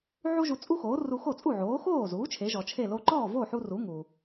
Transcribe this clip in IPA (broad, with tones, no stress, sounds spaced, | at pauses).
ʕ u˥ ʒ u˧ t͡sʼ u˥ x oː˩˥ r u˧ x o˥˩ t͡sʼ u˥˩ ʕ oː˩˥ x oː˥˩ z uː˩˥ t͡ʃʰ e˩˥ ʒ ɔ˩ t͡ʃʰ e˥˩ l o˧ ǃ ɔː˥˩ v o˥˩ ħ u˧ r u˩˥ ŋ u˩